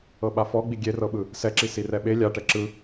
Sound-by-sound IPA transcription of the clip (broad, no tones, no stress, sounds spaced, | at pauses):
ɤ ɓ a f ɔ ɡ͡b i ɡʲ e r ɤ ɓ ɯ | s ɛ ǁ i s i r ɛ ɓ e lʲ a ʈ ɛ ǁ ɯ